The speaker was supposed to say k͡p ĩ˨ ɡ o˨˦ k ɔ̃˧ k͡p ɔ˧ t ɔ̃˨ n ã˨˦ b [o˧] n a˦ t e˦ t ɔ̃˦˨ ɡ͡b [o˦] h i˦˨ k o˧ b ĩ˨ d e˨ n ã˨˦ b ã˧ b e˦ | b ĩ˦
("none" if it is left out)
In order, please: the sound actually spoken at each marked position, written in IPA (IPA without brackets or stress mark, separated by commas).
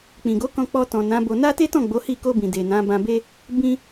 o˧, o˨˦